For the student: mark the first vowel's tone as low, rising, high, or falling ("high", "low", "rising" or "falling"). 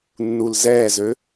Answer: low